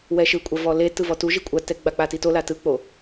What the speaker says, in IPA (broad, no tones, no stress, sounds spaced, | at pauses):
w ɛ ʃ ɯ kʷʼ a v ɔ l e t ɯ v ɔ t u ʒ i kʷʼ a t ɛ ɡ͡b a k͡p a t i t o l a t ɯ k͡p o